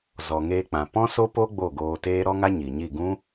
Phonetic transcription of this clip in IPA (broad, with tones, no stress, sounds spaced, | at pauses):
z ɔ˨ ŋ eː˧ k͡p ã˨ p ɔ̃˦ s o˦ p o˦ ɡ͡b o˦˨ ɡ oː˧ t eː˦ ɾ ɔ˦ ŋ a˦ ɲ i˨ ɲ i˦˨ ɡ ũ˦